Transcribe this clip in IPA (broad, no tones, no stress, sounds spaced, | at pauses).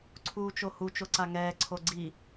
ǀʰ uː t͡ʃ o h u t͡ʃ o ǀ a ŋ ɛː ǀʰ o ɡ͡ǀ i